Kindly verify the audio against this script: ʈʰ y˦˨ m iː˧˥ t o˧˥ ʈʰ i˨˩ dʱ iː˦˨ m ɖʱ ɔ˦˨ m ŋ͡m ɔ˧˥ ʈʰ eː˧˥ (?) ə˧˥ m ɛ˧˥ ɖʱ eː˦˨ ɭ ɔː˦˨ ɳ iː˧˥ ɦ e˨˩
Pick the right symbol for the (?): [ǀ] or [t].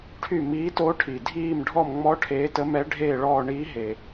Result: t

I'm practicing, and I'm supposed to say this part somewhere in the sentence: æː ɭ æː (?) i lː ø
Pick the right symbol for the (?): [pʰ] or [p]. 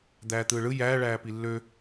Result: p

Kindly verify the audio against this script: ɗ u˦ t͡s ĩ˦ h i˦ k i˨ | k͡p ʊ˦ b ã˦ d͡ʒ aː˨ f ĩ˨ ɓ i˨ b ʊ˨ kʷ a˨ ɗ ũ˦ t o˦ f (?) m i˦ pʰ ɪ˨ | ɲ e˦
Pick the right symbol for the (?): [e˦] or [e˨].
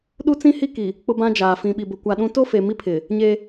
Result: e˨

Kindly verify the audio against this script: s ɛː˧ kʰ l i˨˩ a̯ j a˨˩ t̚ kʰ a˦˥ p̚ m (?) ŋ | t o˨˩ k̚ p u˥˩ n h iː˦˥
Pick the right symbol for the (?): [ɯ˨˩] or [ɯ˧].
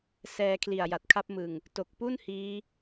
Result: ɯ˨˩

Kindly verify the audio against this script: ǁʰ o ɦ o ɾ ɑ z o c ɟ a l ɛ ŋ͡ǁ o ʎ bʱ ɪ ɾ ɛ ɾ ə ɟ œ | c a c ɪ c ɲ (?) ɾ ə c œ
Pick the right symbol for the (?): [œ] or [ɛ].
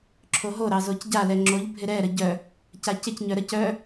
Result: œ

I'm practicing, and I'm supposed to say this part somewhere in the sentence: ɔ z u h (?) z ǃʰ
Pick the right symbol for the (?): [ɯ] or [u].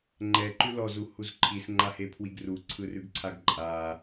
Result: u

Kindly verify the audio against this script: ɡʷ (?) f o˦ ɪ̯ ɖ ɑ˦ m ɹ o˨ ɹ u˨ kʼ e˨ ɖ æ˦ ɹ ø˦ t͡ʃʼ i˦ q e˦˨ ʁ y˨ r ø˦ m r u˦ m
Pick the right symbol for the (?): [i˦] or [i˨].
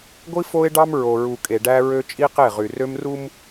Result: i˦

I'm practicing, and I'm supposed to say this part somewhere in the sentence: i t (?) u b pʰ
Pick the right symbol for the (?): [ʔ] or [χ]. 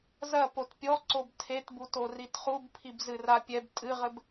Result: χ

